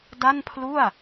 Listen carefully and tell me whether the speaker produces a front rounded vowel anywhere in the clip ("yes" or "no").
no